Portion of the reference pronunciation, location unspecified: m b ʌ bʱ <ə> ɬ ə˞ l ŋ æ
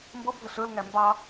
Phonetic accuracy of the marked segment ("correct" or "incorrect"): correct